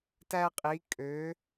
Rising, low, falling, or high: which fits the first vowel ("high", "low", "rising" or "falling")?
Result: high